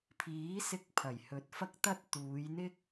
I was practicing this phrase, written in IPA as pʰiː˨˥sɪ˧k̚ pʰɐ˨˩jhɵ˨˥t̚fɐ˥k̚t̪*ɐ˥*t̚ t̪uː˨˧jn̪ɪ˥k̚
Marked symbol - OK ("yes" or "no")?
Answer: yes